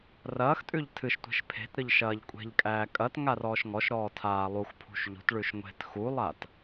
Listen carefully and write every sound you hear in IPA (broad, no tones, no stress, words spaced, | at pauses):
rɐːxtʼʉʎ tʰɨʃtʷe̤ʃ pʰe̤tɾɨʎ ʃɐːʎkʷʼe̤ʎkʼæː kʼɐt ŋarɔːʃŋɔʃɾɔː tʰaːlˠuxpʰṳʃ ʎṳtɭʉʃ ŋʷe̤t xulˠaːt